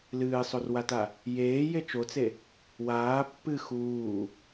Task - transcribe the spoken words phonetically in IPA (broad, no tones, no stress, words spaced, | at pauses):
lɨːsˤorwata | jeː jet͡ʃot͡se | waː pːɨ xuː